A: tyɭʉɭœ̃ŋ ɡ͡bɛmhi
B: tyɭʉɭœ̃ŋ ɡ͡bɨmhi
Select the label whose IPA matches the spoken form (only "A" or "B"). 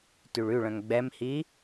A